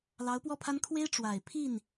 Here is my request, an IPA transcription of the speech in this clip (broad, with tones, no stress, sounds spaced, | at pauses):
l ɑ˧˥ ʊ̯ p w ɔ˥˩ pʰ a˥ n kʰ w e˥ ɪ̯ ʈ͡ʂ w a˨˩ ɪ̯ pʰ i˥˩ n